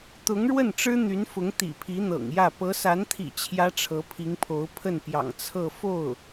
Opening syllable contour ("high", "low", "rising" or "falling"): rising